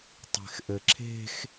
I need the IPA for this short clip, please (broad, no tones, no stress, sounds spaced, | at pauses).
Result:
tˤ e̤ x ʔ ɘ ǁʰ e̤ x